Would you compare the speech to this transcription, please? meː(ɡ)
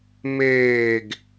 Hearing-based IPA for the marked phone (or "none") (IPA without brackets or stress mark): ɡ